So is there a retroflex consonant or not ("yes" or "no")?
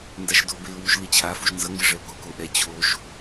yes